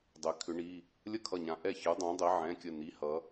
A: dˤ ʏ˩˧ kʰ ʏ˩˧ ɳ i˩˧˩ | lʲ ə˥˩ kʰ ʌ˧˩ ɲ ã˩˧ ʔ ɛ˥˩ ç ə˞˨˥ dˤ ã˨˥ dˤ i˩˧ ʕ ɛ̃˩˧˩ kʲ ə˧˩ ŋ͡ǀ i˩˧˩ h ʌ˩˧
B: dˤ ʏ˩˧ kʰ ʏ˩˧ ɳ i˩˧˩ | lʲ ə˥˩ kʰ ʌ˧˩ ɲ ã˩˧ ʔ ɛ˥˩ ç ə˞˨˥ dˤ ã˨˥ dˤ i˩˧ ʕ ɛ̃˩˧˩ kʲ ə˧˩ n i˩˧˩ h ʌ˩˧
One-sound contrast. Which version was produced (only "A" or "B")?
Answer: B